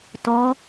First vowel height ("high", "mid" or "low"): mid